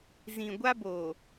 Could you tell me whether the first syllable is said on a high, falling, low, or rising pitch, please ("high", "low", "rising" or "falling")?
low